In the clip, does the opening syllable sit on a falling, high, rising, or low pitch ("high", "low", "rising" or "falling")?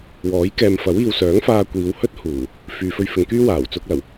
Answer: rising